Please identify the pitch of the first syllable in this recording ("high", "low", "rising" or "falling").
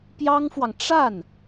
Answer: high